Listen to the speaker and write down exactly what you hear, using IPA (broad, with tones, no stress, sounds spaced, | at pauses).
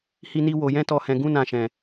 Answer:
h i˦ n i˦ w o˧ j ɛ̃˦ t ɔ˧ h ɛ̃˧ ɡ ũ˦ n ã˧ ʃ ɛ̃˧